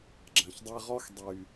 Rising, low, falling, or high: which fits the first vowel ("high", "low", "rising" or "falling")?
low